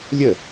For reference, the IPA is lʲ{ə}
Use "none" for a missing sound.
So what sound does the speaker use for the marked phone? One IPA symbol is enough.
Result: ə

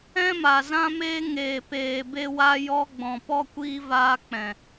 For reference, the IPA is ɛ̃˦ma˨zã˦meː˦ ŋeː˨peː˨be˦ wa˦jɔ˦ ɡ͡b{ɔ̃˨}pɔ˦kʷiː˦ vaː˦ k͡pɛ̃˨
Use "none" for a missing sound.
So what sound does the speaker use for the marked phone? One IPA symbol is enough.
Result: ɔ̃˨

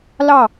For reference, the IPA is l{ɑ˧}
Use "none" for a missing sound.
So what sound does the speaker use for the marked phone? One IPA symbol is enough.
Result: ɑ˥˩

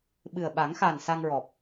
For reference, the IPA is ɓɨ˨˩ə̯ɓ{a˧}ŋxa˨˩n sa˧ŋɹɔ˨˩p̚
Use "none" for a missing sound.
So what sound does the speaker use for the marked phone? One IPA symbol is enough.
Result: a˨˩˦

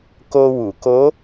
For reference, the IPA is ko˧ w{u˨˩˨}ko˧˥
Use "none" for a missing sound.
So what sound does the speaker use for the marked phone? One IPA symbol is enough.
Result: u˨˩˨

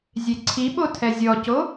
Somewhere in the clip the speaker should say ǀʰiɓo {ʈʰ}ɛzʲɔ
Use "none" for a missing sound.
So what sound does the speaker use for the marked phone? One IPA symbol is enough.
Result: tʰ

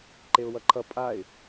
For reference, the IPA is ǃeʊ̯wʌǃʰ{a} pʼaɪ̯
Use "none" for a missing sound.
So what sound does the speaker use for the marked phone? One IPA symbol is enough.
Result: ʌ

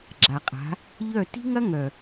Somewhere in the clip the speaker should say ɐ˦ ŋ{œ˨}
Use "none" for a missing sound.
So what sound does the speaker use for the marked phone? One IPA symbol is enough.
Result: œ˨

